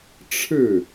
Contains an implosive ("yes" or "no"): no